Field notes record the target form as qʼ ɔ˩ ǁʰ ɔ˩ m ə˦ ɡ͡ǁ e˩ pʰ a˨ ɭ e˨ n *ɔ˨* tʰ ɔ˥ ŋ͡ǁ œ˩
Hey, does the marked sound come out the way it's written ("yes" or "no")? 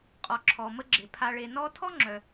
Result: no